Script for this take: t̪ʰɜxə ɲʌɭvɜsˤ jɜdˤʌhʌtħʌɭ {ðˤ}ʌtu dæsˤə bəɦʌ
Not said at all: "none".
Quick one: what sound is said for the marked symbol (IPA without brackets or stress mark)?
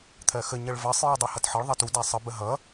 ðˤ